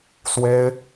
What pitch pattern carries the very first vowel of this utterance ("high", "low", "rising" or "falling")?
high